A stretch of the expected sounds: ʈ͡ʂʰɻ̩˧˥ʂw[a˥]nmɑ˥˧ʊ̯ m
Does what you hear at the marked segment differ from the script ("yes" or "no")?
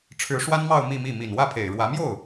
no